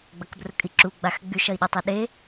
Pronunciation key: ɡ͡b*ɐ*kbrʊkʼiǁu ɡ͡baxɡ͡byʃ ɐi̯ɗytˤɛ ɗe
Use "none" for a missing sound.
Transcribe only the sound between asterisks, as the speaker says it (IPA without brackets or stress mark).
ɐ